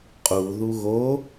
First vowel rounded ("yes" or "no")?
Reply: yes